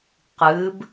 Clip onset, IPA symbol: q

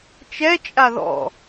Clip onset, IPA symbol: t͡ʃ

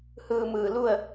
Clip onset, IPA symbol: h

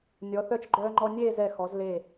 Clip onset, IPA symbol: nʲ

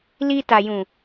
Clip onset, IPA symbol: l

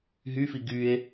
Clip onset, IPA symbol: ɦ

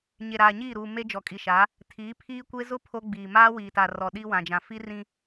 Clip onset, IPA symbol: ɲ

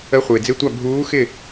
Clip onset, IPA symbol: ə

